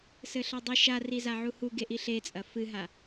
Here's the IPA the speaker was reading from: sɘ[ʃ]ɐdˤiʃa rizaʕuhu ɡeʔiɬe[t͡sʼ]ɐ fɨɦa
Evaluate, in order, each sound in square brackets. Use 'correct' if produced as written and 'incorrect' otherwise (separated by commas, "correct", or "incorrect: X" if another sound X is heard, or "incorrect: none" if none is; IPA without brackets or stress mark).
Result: incorrect: ɬ, correct